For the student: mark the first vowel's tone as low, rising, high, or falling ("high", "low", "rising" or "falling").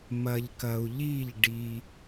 low